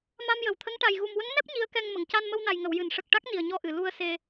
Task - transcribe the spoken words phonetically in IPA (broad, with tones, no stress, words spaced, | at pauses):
ma˧mjə˨˩wt̪ʰə˧˥ŋ ʈa˨˩j ɣu˨˩mwə˧˥ŋnɛ˦˥p̚ ɲi˧˥ə̯kɛ˧ŋmə˨˩˨ŋ ca˧nmə˧wna˨˩jŋə˨˩˨w jɨ˨˩˨nʂə˨˩k̚ʈa˦˥k̚ ni˨˩ə̯ɲɔ˧ʔɨ˨˩˨ lu˧ə̯se˧